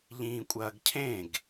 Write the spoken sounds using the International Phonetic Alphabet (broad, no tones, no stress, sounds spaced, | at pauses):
ʎ ĩː kʷʼ ɐː ɡ cʰ ẽ ɡ